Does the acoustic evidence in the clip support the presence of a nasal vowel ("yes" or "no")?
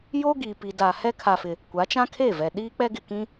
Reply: yes